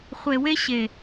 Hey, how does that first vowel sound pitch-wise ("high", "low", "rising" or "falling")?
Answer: low